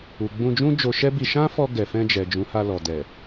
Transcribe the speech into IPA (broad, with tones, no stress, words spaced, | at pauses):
u˨ɡ͡bũ˧d͡ʒũ˦ d͡ʒo˧ʃɛ˦bi˧ ʃã˦fɔ˧ ɡɛ˨fɛ̃˧d͡ʒɛ˨ d͡ʒũ˨˦ha˧ lɔ˨dɛ˨